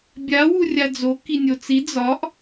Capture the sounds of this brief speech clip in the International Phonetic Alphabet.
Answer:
bʲawurʲa d͡zo kinʲot͡si d͡zɒʔ

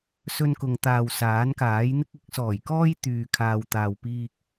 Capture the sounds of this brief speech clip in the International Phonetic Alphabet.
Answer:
sɵ˧nkʊ˨ŋt̪aː˨w saː˨˥nkaː˨˥jn̪ɪ˥k̚ ɪ˨˥k̚sɔː˨˩j kɔː˥j t̪yː˨kʰaː˨w t̪aː˨wpiː˧k̚

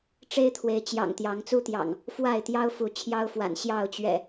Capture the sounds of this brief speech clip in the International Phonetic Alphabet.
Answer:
ʈ͡ʂe˦ɪ̯t̪ʰwe˨˦ɪ̯t͡ɕjɑ̰˨˩ŋ t̪jɑ˨˦ŋt͡su˦t̪jɑ̰˨˩ŋ | fwa˥˨ɪ̯t̪jɑ˦ʊ̯ fu˨˦t͡ɕʰjɑ˦ʊ̯fwa̰˨˩n ɕjɑ˥˨ʊ̯t͡ɕɥɛ̰˨˩

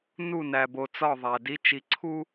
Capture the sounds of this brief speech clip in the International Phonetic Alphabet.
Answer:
nu˦˨næ˨bo˨t͡sɒ˦˨ ðˤæ˨di˦t͡ʃi˨˦ǀʰu˦

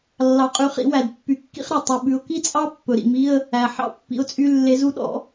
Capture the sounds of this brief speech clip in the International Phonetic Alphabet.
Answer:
lːɑ˨˥qʼy˨˥χḭ˨˥wæ˨d pːy˨˥kːḭ˥χɾe˨ tˤʉ˨ ɓʉ˨˥ʊ̯ ki˥t͡sʼɑ˥ pːɵ˨ɾḭ˨mi˧˥˧ə̯ | æ˨ ħɑ̰˥pːḭ˨˥ʊ̯t͡sʼy˧˥˧ lːe˨˥zu˥ɗɔ̰˨˥

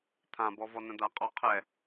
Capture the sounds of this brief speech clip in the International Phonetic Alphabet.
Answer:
t̪ʰãbɔvɔnə̃ d̪aqʼɔqʰɛ

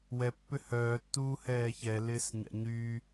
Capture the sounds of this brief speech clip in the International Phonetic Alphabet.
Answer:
wɛpːʏ hœːtːuːhɛː çɛlɪːsɲa̰ ɲyː

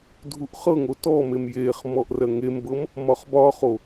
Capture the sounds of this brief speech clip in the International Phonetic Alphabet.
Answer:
dʱuʔχɤŋo tɔmem jeχ mɔʔrɜŋembɤm | mɒχbɒχo

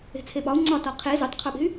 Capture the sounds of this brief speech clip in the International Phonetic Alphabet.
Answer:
e̤t͡sʰeɓɒu̯ ŋ͡ǀɒ tɒqʰe zutˤqʰuɓe̤y̯

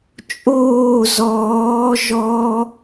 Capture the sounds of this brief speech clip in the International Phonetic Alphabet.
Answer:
t͡ʃʼoː zɔː ʒɔ

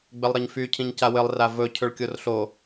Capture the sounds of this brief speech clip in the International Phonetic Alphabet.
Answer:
ɡ͡bɘlˠɾɘɲfy cʰĩɲcawɘlˠ ravɵ cʰɵɭkʲorɬo

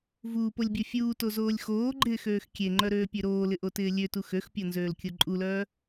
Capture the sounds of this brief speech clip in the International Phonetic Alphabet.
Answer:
vuːpolʲbʲo fʲuːtozoːlʲ xoːɡ͡ǃɪːxøːx kʲeŋ͡ǃœɾøːpʲø ɾoːlɪʔotɪː lʲøtu xøxpʲonzøːlkʲo ǃʼulœː

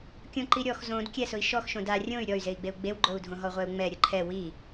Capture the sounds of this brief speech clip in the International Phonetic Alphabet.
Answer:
kʲõǃiɾʲɔx zõd kʲɛsʊi̯ ʃɔx ʃõda rʲõy̯ ɾʲɔy̯zei̯ɡ͡beu̯ ɡ͡bewɡ͡ǃou̯dʱõɦɔ ʁʷɛu̯ŋ͡mɛ ɾʲʊǃʰɛ wi

